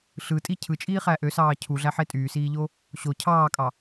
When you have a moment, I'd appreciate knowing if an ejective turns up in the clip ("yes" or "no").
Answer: yes